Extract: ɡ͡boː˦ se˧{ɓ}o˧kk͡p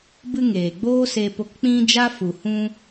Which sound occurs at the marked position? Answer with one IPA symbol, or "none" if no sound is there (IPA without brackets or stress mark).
p